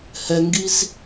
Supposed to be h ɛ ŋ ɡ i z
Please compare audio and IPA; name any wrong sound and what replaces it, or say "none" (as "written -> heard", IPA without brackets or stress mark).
none